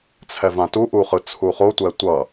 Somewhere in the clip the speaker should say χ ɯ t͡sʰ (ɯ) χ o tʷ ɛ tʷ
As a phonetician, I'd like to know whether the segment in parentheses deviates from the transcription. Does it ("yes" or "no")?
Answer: yes